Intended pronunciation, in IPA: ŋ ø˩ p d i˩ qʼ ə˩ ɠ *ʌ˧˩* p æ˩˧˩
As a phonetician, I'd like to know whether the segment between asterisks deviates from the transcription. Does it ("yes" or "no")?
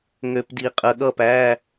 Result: no